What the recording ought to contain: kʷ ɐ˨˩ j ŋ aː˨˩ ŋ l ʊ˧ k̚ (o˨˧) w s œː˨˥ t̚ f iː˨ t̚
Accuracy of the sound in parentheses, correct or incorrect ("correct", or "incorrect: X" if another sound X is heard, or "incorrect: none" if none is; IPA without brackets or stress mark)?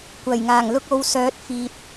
correct